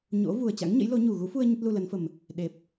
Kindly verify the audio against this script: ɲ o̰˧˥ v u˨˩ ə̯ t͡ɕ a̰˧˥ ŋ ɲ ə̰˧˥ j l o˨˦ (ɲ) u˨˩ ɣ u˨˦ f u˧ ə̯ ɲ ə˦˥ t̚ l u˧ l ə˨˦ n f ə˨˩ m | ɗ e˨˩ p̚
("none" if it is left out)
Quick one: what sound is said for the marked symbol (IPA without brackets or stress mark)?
ɲ